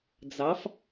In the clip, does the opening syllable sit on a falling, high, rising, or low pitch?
rising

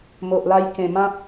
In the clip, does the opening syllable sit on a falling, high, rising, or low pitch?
low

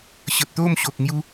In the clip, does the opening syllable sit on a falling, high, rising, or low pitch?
low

